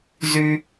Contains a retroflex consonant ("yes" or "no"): no